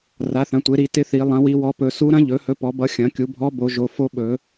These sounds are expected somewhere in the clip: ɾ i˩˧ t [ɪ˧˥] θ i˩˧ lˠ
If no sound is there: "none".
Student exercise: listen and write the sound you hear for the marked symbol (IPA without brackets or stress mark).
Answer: ɪ˧˥